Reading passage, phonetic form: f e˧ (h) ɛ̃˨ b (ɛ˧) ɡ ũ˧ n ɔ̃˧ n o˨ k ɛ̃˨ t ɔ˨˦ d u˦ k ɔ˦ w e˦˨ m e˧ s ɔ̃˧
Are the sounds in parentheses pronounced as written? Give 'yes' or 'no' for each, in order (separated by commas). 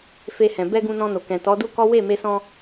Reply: yes, yes